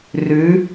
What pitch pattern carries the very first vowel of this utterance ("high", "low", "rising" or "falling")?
rising